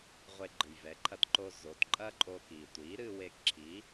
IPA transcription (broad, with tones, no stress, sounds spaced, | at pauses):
ʁʷ e˧ ɡ͡ǃ ɨ˩ j v ɛ˩˥ ǃʰ ɐ˧ t ǃ o˧ z o˩˥ t ǃʼ ɐ˥ ǃʼ o˧ k iː˩ tʷ iː˩˥ ɾ ɨː˧ w eː˧ k ǁʰ i˩˥